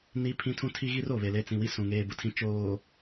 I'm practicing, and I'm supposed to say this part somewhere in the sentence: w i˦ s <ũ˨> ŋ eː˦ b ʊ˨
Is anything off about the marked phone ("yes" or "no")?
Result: no